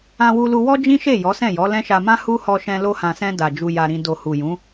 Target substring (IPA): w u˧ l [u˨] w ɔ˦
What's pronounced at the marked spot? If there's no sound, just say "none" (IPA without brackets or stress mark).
u˧